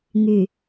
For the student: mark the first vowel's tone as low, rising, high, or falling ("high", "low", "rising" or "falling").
low